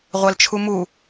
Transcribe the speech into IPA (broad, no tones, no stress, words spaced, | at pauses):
ʁʷælt͡ʃʰumu